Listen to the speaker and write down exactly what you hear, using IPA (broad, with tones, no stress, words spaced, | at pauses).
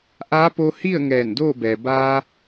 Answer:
ʔa˧˥ po˧hi˥˨ə̯ ŋɛː˧˩ndoː˥˨ bɛː˩ baː˧